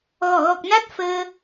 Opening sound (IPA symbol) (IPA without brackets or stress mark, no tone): ɣ